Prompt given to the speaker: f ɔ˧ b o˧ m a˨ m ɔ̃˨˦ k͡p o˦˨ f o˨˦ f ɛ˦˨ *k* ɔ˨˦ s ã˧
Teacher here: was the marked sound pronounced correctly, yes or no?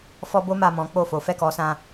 yes